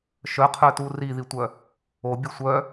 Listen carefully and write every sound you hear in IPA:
ʃ œ qʰ œ t u r i ð i tʷ œ | o bʲ u sʷ œ

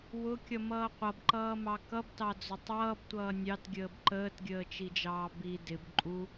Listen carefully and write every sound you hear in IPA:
w ʊ kʲ ʌ m ʌː qʷ ʌ b ǃ ʌː m ɑ k ʌ b t ɑ d͡z ʊ tˤ ʌː b tʷ ʌː nʲ ɑ t ɡʲ əː b ǃ əː t ɡʲ əː t͡ʃ i d͡ʒ ɑː b i d ɪ b ǃʼ u

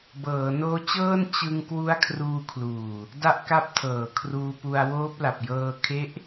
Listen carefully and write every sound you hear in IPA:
b ɤː˩˦ n oː˦˥ t͡ɕ ɤː˥˩ n t͡ɕ ɯ˧ ŋ k w u˦˥ a̯ kʰ r uː˧ kʰ l uː˨˩ | d a˥˩ ʔ k a˥˩ p̚ tʰ ɤː˨˩ kʰ r uː˧ p u˧ a̯ w oː˦˥ p̚ l a˨˩ p̚ j ɤː˧ kʰ e˦˥ ʔ

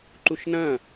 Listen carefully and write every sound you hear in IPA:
ǃ u ʃ n ɐ̃

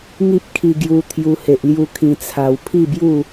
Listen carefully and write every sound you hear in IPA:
ŋ i˦ p̚ kʰ i˧ ɡ j u˧ t̪ʰ j u˧ h e˨ ʔ l j u˧ kʰ ĩ˧ t͡sʰ a˧ w pʰ i˥˧ b j u˥˧

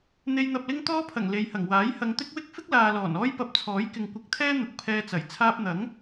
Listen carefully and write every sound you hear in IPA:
n̪ e˧ j n̪ ɐ˧ p̚ l ɪ˥ ŋ t̪ ɔː˥ pʰ ɐ˨˩ ŋ l e˨ j h ɐ˨˩ ŋ w aː˨˥ j h ɐ˨˧ ŋ t̪ ɪ˥ k̚ w ɪ˥ k̚ f ɪ˥ k̚ l aː˨ l ɔː˨˩ n ɔː˥ j p ɐ˧ p̚ t͡sʰ ɔː˨˥ j k ɪ˨ ŋ kʷ ɪ˨˥ k̚ t̪ʰ ɛː˥ n̪ ʊ˨ k̚ pʰ ɛː˧ t͡s ɐ˨˩ j t͡sʰ aː˧ p̚ n̪ ɐ˨˥ ŋ

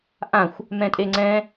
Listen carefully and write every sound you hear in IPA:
ʔ ã xʷ | m ɛ̃ tʼ e ŋ͡ǀ ɛ̃

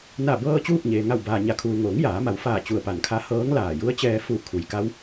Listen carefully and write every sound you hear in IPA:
n a˧˩ b ɤː˧ t͡ɕ uː˥˨ k̚ ɲ eː˩ ŋ a˧˩ w b aː˩ ɲ a˩˧ kʰ uː˩ ŋ oː˩˧ ŋ j aː˩˧ m a˩˧ w f aː˧˩ t͡ɕ u˧˩ ə̯ p a˧˩ n kʰ a˧˥ h ɤː˧˥ ŋ l aː˧˩ j u˧˥ ə̯ t͡ɕ ɛː˧ f u˧˩ kʰ u˩ j k a˧˥ w

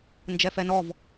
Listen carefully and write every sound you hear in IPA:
n d͡ʒ ɛ f ɛ n ɔ v

